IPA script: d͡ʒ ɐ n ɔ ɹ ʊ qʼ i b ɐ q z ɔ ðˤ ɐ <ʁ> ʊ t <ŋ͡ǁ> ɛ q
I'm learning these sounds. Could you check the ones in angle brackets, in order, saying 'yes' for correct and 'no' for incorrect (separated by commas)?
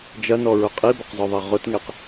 yes, no